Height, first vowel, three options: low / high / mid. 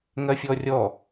low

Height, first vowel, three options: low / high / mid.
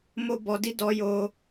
mid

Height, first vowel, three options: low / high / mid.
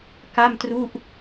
low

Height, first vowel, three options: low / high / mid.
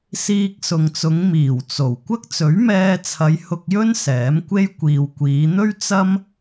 high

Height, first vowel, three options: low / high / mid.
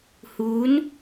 high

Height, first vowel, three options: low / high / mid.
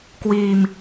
high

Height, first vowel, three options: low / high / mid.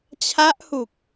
low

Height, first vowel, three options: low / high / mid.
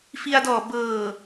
high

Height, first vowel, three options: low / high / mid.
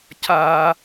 low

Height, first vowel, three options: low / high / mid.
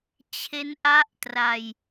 mid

